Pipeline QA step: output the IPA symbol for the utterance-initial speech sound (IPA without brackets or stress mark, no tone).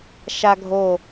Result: ʃ